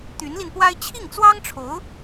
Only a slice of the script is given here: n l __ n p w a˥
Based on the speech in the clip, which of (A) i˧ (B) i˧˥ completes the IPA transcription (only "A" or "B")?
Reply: A